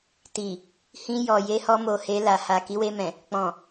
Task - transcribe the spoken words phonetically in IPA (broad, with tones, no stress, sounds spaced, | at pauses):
t i˨ | h ĩ˧ j ɔ˨ j e˧ h ɔ˧ m o˨ h e˧ l a˨ h a˨ k i˨˦ w e˧ m ɛ̃˨ | k͡p ɔ̃˨